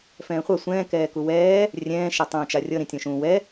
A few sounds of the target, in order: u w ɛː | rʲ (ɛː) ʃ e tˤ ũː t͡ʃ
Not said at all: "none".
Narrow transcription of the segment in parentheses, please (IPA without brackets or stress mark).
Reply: ɛ̃ː